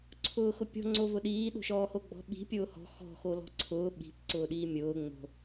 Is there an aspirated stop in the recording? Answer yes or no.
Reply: yes